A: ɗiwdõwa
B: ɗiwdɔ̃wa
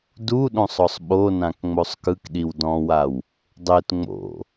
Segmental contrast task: B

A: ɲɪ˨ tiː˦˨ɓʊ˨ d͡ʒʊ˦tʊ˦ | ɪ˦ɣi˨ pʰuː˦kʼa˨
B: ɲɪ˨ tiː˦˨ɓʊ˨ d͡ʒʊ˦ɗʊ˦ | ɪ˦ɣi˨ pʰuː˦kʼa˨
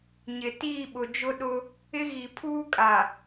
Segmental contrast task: B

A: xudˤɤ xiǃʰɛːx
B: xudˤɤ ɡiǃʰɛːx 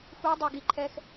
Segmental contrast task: B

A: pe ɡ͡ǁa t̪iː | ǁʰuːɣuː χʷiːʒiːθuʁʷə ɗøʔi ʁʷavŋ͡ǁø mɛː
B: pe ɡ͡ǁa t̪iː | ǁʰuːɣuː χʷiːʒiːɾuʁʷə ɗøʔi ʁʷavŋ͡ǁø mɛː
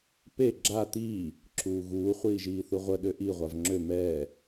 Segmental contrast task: A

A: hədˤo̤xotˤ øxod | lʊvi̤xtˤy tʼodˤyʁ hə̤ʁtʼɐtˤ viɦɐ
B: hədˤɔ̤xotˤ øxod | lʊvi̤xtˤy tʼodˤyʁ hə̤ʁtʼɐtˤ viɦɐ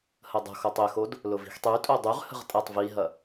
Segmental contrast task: A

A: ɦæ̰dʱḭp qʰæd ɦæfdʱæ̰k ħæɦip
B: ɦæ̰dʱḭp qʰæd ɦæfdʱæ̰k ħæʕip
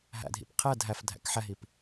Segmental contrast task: A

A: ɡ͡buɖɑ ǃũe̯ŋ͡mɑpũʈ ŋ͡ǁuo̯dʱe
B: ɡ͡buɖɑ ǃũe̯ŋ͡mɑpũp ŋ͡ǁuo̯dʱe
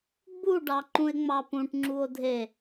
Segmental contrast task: A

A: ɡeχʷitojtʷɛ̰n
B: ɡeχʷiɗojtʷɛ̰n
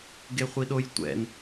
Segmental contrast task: B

